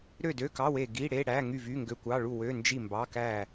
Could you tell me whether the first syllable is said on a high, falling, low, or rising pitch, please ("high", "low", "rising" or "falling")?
falling